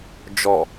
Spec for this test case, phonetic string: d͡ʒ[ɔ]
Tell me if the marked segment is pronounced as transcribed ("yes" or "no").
yes